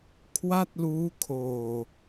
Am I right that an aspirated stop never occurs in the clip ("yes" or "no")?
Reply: no